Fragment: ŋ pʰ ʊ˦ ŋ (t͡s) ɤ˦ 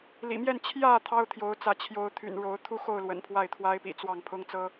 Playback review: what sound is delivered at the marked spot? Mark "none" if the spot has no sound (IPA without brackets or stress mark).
t͡s